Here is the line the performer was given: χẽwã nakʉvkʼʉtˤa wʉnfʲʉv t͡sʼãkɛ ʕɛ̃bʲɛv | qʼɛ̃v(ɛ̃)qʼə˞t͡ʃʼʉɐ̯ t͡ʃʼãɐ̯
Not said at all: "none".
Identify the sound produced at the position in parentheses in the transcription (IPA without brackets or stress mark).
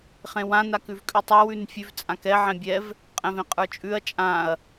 ẽ